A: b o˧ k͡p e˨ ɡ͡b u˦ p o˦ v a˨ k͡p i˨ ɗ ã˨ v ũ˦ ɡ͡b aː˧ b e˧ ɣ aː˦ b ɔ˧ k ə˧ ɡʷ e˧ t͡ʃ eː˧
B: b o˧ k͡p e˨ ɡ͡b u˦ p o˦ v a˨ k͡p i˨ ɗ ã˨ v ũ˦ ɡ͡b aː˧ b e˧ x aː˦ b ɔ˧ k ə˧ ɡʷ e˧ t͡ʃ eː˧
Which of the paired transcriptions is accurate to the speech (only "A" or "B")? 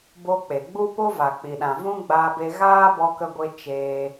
A